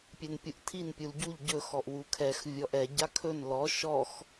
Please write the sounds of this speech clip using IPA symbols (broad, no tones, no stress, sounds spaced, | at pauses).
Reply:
pʲ ɛ n pʲ u ʔ tʰ i n pʲ u l ɟ u ʎ ɟ ɵ x ɔ ʔ w u kʰ ɛ x vʲ ɔ ʔ ɛ ɟ a kʰ ɵ n l ɔ ʃ ɔ x